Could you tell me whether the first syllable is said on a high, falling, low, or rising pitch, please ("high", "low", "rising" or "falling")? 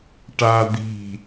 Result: high